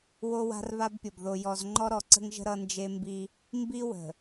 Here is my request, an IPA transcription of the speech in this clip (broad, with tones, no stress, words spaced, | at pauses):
wo˦wa̤˦rβa˦bpʲʌ˨b ðo˨jɔ˨z ŋ͡ǃɔ˦ɾɔ˨ǀə̤˦ŋʒə̤˦ ɾʌ˦nd͡ʒe˦ mbi˦ | mbi˦wə̤˨